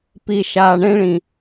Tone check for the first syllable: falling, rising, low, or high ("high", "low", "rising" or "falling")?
low